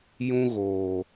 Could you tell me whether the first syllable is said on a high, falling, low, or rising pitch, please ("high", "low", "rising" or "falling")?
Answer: high